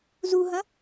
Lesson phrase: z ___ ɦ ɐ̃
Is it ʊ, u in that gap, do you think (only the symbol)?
u